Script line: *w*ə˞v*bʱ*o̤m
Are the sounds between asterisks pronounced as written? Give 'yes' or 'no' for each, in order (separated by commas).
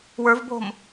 yes, yes